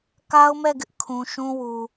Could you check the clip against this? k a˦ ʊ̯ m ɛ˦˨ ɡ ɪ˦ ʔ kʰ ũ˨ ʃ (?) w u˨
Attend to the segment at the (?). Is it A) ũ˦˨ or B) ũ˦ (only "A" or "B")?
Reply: B